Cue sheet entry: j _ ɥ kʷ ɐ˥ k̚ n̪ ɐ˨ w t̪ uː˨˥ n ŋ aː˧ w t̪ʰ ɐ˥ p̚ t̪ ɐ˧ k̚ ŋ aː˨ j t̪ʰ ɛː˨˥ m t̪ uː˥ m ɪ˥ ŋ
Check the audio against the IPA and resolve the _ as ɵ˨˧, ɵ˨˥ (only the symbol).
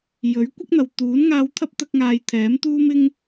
ɵ˨˥